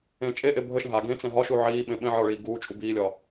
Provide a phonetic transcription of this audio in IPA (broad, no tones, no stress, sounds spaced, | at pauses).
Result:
ẽː t͡ʃʼ e ʔ e bʱ ə ʃ ə̃ ɦ a ɡ ẽ t͡s ɛ̃ ɦ ɒ ʃ u ʕ iː ɓ ẽ ɓ ẽ ʕ ɒ ɭ iː ɡ uː t͡ʃʼ u b iː lʲ ɒ